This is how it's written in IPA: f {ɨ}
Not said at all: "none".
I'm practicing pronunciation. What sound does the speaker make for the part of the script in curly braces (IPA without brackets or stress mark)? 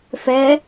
ɛ